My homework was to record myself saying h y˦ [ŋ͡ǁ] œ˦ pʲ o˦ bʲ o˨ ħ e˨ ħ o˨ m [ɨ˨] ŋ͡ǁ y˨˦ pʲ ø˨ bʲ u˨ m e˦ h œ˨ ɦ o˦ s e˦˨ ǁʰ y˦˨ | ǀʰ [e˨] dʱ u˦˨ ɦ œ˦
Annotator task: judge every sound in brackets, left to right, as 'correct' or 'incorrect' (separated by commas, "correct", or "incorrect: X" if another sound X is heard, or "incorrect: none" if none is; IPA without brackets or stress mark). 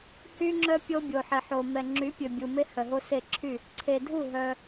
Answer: correct, incorrect: ɛ˨, correct